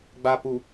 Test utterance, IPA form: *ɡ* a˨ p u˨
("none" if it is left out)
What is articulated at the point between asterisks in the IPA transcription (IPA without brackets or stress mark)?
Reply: ɡ͡b